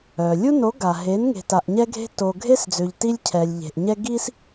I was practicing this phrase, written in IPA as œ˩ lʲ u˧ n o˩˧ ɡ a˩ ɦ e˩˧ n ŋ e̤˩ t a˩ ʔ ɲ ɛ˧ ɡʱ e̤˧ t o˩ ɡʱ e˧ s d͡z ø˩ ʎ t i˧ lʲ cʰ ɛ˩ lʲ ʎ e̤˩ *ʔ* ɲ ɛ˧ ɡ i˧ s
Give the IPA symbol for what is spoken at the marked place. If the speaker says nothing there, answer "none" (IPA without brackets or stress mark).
ʔ